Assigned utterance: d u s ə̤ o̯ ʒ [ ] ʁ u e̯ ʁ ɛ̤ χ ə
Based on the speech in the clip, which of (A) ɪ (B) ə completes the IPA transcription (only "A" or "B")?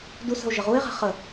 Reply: B